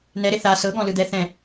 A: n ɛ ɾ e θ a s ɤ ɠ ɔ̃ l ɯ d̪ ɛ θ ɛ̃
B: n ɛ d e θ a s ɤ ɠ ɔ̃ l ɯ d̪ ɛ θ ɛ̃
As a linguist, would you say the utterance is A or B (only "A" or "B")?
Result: A